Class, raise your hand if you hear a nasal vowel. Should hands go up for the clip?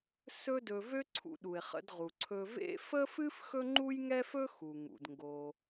no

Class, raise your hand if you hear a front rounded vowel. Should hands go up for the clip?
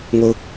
no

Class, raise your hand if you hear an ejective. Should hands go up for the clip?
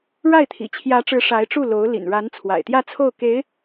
no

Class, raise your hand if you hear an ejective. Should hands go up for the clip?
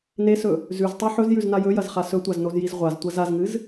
no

